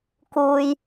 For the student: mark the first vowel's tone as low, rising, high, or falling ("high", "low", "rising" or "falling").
low